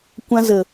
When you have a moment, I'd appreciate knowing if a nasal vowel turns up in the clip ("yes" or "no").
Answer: yes